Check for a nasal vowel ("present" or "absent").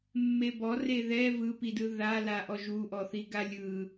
absent